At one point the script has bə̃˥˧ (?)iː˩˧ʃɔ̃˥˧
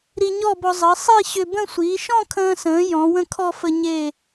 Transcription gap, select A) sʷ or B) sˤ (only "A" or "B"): A